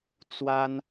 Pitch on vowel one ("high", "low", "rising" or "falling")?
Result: high